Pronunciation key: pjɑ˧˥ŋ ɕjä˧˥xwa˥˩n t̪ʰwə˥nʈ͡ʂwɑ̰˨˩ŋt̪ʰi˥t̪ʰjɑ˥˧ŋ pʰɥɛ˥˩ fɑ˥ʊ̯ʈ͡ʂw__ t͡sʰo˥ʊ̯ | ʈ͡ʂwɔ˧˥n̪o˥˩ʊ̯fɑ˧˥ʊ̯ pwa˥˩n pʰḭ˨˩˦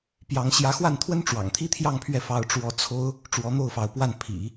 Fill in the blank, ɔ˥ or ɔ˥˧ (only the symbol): ɔ˥